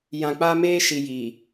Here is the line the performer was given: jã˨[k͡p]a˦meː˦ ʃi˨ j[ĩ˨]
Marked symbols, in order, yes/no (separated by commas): yes, no